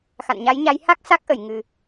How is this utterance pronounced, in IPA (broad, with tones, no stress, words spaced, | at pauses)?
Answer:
xa̰˧˨nɲa˨˦jɲa˨˦j ha˦˥k̚sa˦˥k̚ʔə˧˩j ŋɨ˨˩